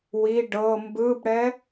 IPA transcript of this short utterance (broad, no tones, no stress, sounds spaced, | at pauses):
w i ɖ ɤ m b ɯ b ɽ ɛ